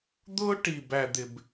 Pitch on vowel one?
high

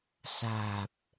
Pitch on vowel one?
low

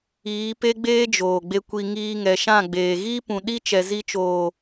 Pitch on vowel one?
rising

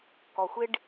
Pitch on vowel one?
low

